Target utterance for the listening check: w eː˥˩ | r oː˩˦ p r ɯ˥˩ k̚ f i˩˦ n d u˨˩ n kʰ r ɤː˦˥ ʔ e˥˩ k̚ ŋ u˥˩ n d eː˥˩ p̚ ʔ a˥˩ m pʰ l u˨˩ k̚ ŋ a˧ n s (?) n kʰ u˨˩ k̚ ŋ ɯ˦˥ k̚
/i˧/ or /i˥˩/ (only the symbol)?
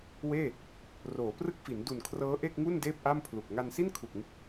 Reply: i˥˩